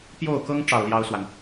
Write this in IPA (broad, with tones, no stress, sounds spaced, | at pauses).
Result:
p j o˥˩ ʊ̯ k ɤ˥ ŋ ʈ͡ʂ ɑ˥˩ ʊ̯ l j ɑ˥ ʊ̯ s w a˨ n